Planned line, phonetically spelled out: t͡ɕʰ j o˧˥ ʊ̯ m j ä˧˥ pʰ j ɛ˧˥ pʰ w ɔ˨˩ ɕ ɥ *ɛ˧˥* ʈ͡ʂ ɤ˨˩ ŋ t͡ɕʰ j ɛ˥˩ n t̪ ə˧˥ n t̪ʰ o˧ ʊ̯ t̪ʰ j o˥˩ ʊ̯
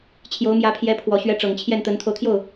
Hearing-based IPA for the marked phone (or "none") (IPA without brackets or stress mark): ɛ˧˥